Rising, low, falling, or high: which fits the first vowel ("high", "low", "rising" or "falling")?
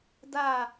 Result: falling